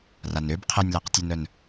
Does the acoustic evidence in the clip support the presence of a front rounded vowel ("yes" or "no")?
yes